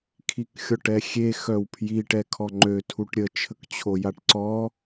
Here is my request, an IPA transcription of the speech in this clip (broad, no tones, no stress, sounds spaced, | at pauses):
kʰ i k xʲ ɔ ʈ ɛ xʲ e x œ w pʰ j i ʈ ɛ kʰ ɔ ŋ͡ǃ ø tʰ u ʈ ɾʲ ə t͡ʃʰ ə k t͡ɕʰ o j a ʈ ǀ ɔ